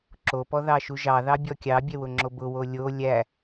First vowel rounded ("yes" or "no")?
yes